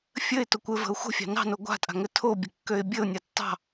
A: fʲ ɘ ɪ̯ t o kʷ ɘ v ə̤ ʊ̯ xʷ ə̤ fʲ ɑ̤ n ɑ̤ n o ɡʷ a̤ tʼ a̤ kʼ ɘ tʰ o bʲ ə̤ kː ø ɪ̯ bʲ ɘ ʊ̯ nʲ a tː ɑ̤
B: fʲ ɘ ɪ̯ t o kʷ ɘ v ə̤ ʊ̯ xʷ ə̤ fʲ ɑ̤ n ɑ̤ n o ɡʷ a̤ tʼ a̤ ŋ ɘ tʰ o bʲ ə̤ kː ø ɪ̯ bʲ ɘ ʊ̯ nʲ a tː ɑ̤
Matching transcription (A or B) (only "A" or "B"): B